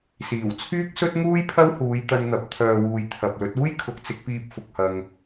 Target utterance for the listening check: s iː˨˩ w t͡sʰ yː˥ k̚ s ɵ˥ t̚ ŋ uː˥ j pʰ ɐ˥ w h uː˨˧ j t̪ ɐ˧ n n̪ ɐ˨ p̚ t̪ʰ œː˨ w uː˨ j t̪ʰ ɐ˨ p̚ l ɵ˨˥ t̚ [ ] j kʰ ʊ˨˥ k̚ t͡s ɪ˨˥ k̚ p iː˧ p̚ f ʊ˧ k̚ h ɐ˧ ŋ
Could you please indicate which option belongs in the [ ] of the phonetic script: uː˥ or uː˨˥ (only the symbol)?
uː˥